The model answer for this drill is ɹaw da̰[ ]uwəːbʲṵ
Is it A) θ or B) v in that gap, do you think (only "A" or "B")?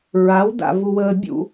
B